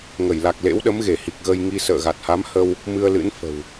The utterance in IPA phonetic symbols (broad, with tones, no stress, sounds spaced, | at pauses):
ŋ ə˧˩ j l a˨˩ k̚ l ḛ˧˥ w ɗ ə˨˦ m ɣ e˧˩ h i˨˩ k̚ ɣ ə˧ j ŋ i˧ s ə̰ː˧˨ ɣ a˨˩ t̚ h a˨˦ m h ə˧ w | m ɨ˧ ə̯ l ɨ̰˧˥ n f ə̤˨˩ w